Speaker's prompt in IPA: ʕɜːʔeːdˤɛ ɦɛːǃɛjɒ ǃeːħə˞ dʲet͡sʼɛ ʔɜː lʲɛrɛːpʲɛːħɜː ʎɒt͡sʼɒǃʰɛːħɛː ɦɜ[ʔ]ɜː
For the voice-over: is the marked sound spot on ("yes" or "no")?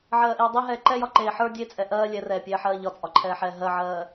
no